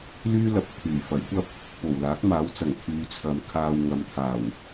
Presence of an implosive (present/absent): absent